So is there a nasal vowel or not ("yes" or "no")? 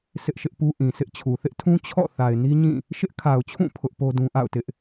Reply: yes